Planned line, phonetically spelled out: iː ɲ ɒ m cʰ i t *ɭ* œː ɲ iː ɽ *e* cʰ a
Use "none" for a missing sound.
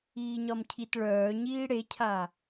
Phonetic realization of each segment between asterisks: ɭ, e

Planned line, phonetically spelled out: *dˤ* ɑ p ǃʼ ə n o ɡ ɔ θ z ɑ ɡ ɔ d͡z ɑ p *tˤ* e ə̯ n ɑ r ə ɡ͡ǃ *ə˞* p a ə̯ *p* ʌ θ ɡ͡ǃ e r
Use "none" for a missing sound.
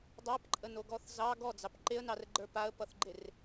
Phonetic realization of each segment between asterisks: dˤ, ǃ, ə˞, p

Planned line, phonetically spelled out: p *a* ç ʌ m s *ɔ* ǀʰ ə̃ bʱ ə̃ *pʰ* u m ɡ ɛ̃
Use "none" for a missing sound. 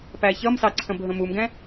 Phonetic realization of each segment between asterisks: æ, ɑ, m

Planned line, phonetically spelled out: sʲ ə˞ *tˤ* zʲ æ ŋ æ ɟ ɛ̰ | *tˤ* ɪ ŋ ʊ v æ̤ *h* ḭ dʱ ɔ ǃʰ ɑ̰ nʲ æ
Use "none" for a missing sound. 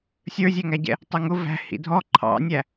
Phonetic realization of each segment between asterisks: none, tˤ, h

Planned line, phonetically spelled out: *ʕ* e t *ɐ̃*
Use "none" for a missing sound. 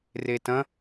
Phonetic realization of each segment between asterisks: r, ɐ̃

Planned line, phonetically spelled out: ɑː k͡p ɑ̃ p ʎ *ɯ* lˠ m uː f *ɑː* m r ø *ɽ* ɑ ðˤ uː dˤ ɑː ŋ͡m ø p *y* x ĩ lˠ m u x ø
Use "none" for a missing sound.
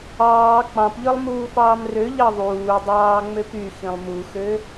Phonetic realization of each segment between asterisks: ɯ, ɑː, ʎ, y

